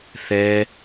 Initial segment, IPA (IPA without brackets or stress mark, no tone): θ